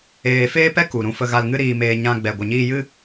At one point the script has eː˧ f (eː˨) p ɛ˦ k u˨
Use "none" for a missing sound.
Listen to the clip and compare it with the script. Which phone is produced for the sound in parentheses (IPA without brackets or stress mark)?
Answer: eː˦